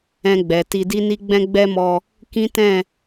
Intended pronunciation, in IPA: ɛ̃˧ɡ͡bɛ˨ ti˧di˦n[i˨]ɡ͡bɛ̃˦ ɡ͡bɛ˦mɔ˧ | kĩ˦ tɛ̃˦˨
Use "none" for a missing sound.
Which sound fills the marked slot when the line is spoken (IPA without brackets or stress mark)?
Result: i˦